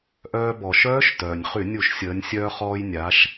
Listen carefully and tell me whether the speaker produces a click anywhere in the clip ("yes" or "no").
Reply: no